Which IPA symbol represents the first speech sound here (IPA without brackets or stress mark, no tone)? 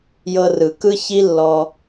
j